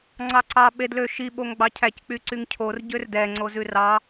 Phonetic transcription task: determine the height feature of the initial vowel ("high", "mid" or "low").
low